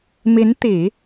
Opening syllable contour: rising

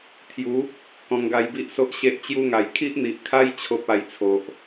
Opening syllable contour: rising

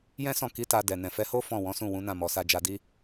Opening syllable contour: high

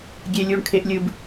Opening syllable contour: high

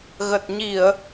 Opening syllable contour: low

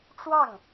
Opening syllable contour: falling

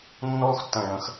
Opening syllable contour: high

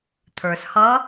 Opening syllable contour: low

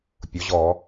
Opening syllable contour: rising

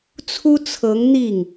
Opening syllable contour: high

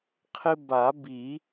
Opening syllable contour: high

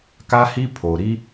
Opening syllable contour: high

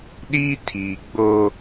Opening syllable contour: high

